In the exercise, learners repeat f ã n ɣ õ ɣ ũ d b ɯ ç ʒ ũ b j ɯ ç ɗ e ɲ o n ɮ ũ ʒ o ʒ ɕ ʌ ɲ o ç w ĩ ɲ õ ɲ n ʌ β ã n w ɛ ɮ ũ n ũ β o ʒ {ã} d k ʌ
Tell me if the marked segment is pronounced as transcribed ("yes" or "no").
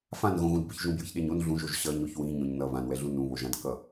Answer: yes